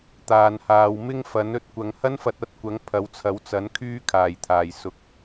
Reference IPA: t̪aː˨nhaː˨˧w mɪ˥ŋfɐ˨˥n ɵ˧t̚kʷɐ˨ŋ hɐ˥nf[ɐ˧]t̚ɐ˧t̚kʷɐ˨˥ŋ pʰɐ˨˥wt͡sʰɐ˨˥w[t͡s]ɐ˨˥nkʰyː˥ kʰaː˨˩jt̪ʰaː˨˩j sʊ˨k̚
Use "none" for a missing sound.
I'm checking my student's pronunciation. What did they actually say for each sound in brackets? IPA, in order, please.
ɐ˧, t͡s

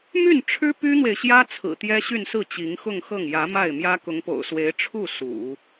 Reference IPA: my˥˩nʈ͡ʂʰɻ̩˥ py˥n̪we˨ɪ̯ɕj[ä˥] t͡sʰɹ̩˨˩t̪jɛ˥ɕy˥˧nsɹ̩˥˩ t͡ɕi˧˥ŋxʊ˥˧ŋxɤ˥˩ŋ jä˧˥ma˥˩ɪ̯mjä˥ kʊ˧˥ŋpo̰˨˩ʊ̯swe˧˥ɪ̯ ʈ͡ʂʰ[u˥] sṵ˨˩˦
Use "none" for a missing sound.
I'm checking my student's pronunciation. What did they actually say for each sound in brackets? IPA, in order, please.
ä˥, u˥˩

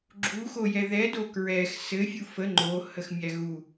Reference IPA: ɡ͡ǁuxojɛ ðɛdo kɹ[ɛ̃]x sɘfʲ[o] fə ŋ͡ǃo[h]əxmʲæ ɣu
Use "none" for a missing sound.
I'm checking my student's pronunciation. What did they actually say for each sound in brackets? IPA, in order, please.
ɛ, u, h

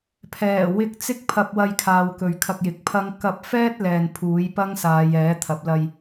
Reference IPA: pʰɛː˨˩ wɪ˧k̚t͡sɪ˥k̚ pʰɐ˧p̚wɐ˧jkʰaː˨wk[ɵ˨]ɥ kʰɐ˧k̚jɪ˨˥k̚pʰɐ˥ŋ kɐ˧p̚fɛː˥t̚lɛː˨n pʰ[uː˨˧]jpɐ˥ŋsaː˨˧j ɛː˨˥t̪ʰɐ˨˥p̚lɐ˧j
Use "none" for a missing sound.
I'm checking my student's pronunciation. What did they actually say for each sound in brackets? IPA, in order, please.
ɵ˨, uː˨˥

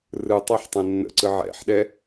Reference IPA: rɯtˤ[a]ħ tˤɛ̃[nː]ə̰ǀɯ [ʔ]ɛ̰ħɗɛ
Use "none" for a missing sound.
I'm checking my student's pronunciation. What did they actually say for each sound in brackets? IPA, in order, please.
a, nː, ʕ

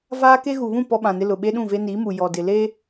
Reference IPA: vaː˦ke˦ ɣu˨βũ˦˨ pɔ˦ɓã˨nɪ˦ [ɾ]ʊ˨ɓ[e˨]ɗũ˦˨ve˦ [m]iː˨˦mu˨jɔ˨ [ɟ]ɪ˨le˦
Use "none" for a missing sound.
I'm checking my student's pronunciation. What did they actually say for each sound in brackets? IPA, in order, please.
l, e˦, n, d

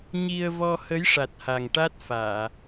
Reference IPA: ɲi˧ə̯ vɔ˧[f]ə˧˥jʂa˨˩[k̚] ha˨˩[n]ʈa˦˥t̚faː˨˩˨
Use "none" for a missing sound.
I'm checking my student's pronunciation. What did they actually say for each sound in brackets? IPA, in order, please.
h, t̚, ŋ

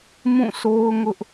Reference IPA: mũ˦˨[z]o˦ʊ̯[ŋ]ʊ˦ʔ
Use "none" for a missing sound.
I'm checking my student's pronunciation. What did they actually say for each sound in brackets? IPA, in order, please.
s, ŋ

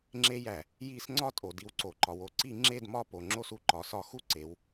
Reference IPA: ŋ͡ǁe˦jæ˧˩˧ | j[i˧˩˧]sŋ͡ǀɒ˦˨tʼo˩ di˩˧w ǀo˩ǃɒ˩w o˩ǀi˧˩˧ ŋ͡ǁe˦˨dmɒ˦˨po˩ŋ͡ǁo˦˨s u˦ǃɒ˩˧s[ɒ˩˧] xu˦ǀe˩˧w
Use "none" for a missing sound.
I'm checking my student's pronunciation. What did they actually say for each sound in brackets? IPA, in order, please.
i˧˩˧, ɒ˧˩˧

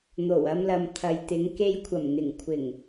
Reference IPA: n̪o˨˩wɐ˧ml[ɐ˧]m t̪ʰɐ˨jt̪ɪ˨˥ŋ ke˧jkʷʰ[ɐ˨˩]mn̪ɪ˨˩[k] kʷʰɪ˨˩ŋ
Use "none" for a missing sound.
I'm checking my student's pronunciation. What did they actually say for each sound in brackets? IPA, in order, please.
ɐ˨, ɐ˨˩, ŋ

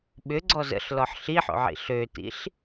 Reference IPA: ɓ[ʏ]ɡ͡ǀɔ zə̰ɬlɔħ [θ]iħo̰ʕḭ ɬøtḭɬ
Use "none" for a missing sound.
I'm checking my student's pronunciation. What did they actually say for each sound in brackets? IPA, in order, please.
ʏ, ɬ

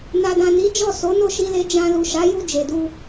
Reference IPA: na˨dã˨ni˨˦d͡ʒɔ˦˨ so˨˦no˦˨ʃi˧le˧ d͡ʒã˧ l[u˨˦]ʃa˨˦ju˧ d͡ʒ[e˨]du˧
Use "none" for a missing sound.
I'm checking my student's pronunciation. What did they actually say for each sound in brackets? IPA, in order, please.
u˨, e˨

